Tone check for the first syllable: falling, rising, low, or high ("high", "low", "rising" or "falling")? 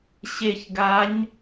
low